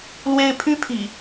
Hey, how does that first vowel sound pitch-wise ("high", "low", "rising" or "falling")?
high